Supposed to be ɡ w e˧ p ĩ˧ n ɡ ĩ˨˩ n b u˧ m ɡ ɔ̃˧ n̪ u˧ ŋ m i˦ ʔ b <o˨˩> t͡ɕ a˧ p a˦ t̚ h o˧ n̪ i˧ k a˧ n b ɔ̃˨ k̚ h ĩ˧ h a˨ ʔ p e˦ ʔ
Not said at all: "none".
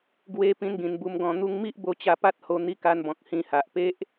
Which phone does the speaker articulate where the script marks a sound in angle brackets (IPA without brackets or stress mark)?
o˧